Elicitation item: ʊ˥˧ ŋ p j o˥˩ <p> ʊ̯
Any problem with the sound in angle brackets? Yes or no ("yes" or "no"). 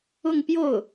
yes